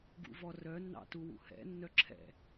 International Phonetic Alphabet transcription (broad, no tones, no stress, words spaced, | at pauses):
ɡṵvɔrœ nːɑ̰tuwṵhɛ̰ nːœǁʰɛ̰